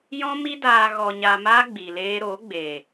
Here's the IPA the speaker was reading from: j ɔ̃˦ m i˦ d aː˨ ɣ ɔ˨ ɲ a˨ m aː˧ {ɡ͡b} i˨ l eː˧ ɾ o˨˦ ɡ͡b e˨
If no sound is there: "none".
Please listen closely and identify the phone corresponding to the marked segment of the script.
ɡ͡b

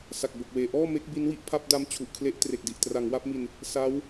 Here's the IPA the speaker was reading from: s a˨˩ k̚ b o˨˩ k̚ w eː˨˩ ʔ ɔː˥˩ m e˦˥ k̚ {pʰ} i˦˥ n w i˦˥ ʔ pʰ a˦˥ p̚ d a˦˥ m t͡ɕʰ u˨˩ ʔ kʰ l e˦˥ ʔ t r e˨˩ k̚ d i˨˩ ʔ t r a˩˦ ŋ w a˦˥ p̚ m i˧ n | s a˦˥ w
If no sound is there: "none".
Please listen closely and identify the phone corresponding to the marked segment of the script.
b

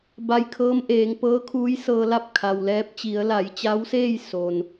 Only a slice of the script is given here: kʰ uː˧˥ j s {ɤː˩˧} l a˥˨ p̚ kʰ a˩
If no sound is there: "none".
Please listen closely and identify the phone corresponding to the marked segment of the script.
ɤː˧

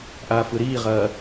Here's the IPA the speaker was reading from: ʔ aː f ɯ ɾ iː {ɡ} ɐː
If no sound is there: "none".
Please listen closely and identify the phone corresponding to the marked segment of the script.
ʁ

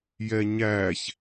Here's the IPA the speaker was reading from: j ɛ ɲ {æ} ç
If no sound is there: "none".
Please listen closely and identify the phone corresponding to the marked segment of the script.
æ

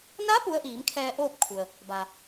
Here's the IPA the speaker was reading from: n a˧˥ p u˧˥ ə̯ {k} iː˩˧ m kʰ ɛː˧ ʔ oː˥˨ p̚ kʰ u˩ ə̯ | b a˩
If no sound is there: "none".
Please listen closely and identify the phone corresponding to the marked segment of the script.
ʔ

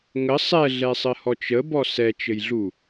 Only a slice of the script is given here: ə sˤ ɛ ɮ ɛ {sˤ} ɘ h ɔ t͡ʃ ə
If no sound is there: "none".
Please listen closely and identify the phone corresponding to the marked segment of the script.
sˤ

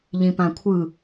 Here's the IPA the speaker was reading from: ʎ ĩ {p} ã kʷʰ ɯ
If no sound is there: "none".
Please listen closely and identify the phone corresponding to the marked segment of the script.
p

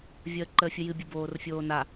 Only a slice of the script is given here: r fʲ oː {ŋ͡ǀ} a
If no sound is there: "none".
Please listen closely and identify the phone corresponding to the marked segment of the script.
n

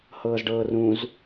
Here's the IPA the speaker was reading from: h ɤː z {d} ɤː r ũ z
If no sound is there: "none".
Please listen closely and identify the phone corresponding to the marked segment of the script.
ɖ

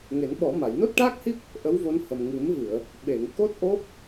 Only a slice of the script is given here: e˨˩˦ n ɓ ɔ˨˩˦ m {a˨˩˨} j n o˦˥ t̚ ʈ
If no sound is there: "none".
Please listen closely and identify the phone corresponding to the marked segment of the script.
a˨˩˨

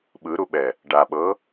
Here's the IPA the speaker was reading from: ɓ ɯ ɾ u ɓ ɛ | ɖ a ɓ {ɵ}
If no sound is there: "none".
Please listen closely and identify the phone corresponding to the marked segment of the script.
ɤ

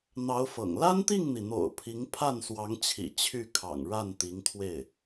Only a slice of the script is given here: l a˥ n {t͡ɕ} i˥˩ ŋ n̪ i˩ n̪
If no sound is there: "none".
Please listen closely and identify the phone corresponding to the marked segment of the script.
t̪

